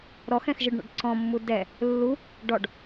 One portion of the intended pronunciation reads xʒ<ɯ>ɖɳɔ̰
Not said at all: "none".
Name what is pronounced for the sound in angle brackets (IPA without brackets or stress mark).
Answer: ɯ